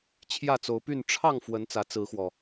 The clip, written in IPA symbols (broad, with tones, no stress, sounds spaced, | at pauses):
t͡ɕʰ j ä˥˨ t͡s o˨˦ ʊ̯ p y˥˨ n ʈ͡ʂʰ ɑ˥˨ ŋ f w ə˨˦ n t͡s ä˨˦ t͡s ɹ̩˨˦ x w ɔ˨˩